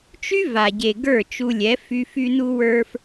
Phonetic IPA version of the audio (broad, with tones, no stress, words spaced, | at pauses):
t͡ʃy˦va˨ɟe˨ ɡə˞˦˨t͡ʃu˧lʲɛ˨˦fy˧f y˧nu˧ wə˞˧f